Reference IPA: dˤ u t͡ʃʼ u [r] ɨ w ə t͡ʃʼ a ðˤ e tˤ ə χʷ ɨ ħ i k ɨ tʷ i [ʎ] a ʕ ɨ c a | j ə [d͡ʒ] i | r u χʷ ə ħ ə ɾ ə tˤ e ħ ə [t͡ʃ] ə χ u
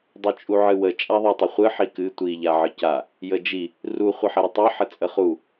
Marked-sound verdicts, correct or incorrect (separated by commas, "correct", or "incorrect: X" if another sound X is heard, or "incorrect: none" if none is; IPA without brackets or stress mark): incorrect: ʕ, correct, correct, incorrect: t͡sʼ